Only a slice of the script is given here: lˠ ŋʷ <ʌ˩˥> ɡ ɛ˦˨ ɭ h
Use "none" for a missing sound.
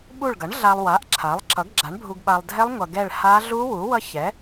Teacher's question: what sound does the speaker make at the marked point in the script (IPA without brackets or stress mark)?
ʌ˨